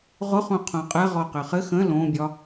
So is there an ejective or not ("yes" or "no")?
yes